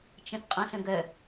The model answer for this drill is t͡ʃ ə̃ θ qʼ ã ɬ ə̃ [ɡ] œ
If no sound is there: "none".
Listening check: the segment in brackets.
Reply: ɡ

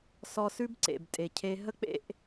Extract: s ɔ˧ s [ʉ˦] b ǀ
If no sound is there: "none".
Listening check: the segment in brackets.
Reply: ʉ˦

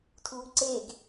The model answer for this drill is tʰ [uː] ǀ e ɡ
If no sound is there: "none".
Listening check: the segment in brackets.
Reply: uː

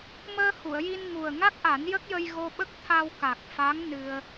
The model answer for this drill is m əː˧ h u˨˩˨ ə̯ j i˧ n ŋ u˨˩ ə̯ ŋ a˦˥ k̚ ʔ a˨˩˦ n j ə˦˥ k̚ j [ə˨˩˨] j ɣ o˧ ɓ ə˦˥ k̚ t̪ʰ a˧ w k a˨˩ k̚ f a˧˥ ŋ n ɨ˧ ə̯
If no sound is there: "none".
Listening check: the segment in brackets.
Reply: ə˧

